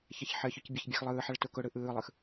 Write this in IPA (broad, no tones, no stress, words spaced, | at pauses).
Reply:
çɛçħɘçʊc bʲɐçbʲaxlˠɯːħɐɭ tʊkʊɽɯ ʔɯːlˠɯx